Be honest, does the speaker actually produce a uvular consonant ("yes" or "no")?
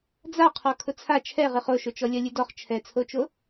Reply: yes